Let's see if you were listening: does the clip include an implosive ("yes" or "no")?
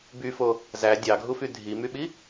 yes